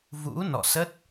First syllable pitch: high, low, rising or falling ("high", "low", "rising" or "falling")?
rising